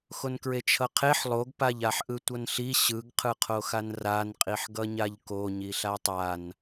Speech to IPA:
x o n k ɹ e t͡ʃʰ ʌ qʰ e ħ lˠ o ɡ p a ʎ a ħ ʔ ɯ tʷ ʌ n ɬ i ɕ ɯ ɡ qʰ ɯ qʰ o x a n r a n qʼ i ħ ɡ ʌ ɲ a ʎ k o ɲ i ɬ a tˤ a n

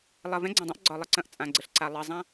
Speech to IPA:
lˠ ɐ˨ v ɛ̃˦ ɡ͡ǀ ã˨ dˤ ɐ̃˦ ʔ ɡ͡ǀ ɒ˨ lˠ ə˦ ǀ ɐ̃˨ ʔ t͡sʼ ã˨ ɡ͡ǀ ə˨ ɬ ǀ a˨ lˠ ə˨ zˤ ã˦

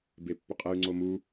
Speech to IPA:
b e pː ʏ qʼ e y̯ ŋ͡ǀ o m u

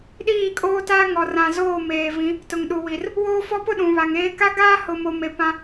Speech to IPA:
ɗ iː˦˨ kʼ oː˦ t a˦ ŋ ɔ˨ r ã˨ z oː˦˨ m eː˨ v ĩ˨˦ | t ʊ˨ ŋ ɗ u˨ w i˨ r | w oː˦ f ɔ˦ p ʊ˦ ɗ ũ˨ β a˨ ŋ eː˦ k a˦ ɡ aː˦ h ʊ˨ m o˨ m e˨ p ã˦

